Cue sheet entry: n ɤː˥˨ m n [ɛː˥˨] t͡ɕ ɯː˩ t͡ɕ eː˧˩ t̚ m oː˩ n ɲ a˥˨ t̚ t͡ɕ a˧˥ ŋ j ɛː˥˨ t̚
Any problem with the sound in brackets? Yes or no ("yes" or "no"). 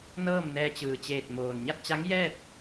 yes